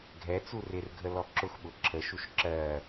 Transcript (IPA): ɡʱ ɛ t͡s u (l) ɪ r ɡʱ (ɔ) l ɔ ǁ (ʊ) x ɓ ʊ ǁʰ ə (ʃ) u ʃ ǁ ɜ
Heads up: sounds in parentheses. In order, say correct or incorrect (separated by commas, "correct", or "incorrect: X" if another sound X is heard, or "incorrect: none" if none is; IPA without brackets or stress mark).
incorrect: r, incorrect: ə, correct, correct